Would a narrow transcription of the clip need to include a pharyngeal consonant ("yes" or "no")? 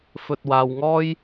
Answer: no